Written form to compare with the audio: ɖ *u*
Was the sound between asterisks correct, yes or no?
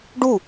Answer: yes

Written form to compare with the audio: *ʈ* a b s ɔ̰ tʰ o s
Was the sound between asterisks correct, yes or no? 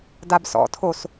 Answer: no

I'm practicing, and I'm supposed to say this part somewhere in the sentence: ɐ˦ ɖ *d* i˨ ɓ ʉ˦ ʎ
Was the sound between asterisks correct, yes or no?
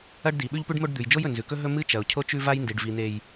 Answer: yes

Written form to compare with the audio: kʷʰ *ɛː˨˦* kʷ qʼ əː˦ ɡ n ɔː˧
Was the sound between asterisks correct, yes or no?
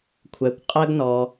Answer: no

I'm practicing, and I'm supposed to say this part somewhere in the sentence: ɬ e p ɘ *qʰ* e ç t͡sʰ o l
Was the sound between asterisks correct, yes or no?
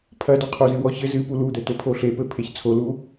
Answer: no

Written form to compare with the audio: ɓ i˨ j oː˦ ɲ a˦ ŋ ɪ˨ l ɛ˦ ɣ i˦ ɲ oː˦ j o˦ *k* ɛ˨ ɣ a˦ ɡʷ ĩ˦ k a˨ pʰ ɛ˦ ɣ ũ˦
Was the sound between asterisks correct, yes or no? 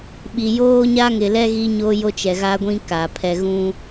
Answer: no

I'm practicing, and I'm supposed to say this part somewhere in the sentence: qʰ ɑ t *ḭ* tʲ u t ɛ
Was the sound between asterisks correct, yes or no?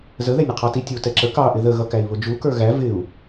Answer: no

